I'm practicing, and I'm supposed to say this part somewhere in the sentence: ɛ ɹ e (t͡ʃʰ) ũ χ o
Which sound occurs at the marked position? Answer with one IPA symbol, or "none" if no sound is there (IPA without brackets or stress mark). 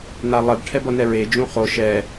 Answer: d͡ʒ